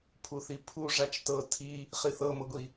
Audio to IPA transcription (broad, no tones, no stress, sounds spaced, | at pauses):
pʰ u θ i pʰ u ʐ a t͡ʃ t ɤ tʰ i | χ i θ ɤ m ɤ ɡʷ i